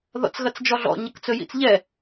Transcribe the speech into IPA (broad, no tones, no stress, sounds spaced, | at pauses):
ð ɔ̰ t͡s ɣ ɐ t͡s d͡ʒ ɔ ɮ ɔ̰ ɲ ɐ k t͡s ɵ j ḭ t͡s ʎ ɛ